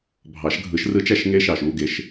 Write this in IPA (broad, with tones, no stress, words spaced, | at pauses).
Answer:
bʱɑ˨˩˦ʃɡʱɯ˨˩˦ʃ rɯ˧˥t͡ʃæ˦˨ʃŋe˧˥ʃɑ˩ʃ u˩˧˩ ɡe˩˧˩ʃ